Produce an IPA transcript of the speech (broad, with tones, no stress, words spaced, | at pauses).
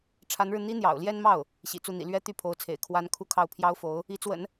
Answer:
ʈ͡ʂʰa˧˥nɻɻ̩˧ n̪i˥n̪jɑ̰˨˩ʊ̯ljɛ˥nmɑ˥˩ʊ̯ | ɕḭ˨˩t͡su˥˩n̪ḭ˨˩ lɥɛ˥ t̪y˥˩pʰo˧˥ʊ̯t͡sʰḛ˨˩ɪ̯ kʰwa˧˥n kʰu˥˧kʰɑ˥˩ʊ̯ pʰjɑ˥ʊ̯fo˧˥ʊ̯ | i˧˥t͡swə̰˨˩˦n